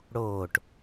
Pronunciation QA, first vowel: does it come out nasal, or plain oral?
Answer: oral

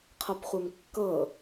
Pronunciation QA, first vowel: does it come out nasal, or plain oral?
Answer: oral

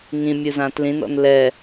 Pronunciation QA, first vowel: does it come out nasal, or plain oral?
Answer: nasal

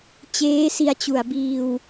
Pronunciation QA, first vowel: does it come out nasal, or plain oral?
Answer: oral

